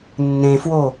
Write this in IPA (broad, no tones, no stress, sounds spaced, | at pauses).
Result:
nː ẽ f w o